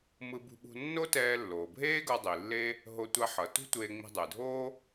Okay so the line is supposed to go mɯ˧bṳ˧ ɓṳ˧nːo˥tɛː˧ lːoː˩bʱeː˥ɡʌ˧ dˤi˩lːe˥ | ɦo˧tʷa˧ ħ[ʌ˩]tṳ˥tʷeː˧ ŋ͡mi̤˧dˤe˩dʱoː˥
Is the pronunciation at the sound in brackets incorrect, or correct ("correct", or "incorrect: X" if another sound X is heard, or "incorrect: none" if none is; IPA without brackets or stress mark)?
correct